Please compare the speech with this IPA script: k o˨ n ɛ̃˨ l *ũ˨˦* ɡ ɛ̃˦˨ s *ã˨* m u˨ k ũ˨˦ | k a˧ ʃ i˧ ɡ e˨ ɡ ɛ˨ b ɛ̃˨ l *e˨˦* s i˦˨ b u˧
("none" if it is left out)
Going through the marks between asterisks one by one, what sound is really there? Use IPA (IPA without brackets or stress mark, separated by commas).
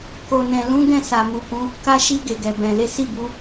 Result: ũ˨˦, a˨, e˨˦